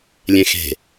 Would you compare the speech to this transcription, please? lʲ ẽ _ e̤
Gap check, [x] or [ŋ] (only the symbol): x